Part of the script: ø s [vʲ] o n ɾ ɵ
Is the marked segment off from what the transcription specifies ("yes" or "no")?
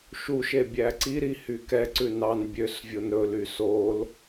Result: no